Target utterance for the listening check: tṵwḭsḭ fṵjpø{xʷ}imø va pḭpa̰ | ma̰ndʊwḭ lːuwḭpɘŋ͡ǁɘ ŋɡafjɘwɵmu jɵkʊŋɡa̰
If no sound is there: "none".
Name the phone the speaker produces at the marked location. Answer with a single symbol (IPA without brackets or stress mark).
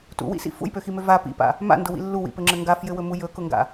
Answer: x